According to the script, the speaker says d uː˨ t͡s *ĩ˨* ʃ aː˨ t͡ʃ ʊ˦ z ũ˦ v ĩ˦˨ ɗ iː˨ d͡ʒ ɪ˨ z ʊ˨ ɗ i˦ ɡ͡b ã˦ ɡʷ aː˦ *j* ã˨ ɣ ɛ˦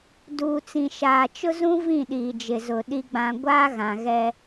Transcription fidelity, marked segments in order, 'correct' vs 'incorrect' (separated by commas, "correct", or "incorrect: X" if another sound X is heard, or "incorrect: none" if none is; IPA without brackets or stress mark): correct, incorrect: ɣ